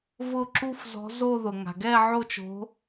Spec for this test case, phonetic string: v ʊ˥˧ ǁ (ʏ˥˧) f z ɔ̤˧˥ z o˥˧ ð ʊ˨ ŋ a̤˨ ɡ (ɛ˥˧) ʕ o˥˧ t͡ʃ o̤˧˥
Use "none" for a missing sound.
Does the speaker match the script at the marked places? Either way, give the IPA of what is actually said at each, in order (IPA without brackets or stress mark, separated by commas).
u˥˧, ɛ˥˧